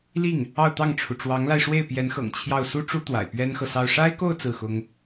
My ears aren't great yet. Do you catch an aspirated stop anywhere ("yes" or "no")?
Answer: yes